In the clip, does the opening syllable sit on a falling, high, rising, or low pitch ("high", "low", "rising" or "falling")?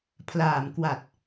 low